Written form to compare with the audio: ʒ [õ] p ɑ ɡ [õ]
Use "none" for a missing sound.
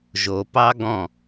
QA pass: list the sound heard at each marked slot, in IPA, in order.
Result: o, ɔ̃

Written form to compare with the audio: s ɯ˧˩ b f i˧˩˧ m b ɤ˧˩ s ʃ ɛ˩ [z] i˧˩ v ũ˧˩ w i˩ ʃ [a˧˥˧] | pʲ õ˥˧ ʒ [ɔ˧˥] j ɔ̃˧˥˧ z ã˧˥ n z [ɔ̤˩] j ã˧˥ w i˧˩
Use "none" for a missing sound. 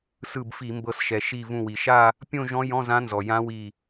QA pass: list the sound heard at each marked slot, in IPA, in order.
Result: ʃ, a˥˧, ɔ̃˧˥, ɔ˩

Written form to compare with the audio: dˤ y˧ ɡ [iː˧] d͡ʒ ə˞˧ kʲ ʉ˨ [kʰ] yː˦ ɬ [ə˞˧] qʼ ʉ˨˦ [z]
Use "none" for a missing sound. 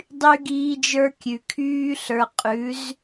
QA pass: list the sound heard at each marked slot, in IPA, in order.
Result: iː˧, kʰ, ə˞˧, z

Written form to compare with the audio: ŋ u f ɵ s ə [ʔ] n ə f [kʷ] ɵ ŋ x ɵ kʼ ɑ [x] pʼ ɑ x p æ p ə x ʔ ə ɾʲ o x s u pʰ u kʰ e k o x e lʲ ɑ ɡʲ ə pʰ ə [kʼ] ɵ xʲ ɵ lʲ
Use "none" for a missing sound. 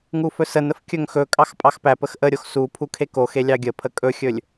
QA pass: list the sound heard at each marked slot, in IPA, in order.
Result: none, kʲ, x, kʼ

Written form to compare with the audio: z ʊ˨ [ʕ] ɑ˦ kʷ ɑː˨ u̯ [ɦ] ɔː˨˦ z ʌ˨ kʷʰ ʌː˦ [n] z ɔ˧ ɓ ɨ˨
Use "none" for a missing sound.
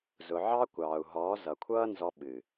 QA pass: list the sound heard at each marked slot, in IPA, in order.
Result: ʕ, ɦ, n

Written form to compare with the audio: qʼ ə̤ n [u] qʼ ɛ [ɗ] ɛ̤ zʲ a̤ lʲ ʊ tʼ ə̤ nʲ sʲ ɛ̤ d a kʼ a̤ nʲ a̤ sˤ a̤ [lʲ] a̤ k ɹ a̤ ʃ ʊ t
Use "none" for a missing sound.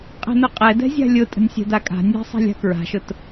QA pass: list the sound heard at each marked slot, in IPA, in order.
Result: ʊ, d, lʲ

